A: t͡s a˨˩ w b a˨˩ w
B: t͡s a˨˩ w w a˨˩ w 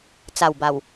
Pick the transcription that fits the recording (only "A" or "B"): A